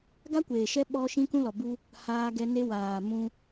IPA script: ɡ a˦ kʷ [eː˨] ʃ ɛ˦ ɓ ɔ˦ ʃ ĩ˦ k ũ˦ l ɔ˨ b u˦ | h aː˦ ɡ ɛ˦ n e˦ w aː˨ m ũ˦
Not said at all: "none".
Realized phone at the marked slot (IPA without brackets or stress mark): eː˨